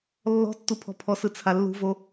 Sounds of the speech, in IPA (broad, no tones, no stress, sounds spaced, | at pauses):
lː ɔ̤ tː u pʰ ɔ̤ pʰ ɔ s ɯ t͡sʰ a lː ṳ v o